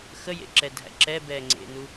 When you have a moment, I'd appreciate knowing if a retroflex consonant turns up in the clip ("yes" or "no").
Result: no